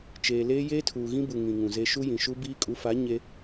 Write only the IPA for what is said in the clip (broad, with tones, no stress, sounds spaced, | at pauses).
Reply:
t͡ʃ eː˨ l eː˦ j eː˦ tʰ uː˨ ɣ ĩ˦ b u˨ ŋ ĩ˨ ŋ ũ˨ z e˦ ʃ u˦ j ĩ˨ ʃ u˦ b iː˦ kʼ u˨˦ f a˨˦ ɲ e˦